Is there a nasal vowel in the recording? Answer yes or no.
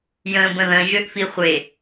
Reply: yes